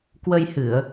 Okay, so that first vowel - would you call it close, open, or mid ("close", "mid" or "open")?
mid